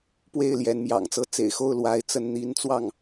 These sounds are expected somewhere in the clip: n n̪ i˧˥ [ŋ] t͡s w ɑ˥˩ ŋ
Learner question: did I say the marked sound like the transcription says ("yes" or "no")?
no